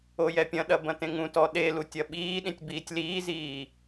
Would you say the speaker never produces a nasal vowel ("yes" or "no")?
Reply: no